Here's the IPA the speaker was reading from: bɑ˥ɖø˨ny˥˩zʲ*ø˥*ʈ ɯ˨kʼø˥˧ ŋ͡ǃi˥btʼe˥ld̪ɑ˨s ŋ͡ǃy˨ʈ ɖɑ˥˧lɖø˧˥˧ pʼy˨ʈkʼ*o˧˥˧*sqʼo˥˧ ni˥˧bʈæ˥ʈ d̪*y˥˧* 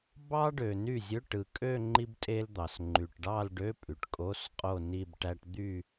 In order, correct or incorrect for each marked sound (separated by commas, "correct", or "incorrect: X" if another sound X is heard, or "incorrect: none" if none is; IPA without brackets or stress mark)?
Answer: incorrect: ø˧˥˧, correct, correct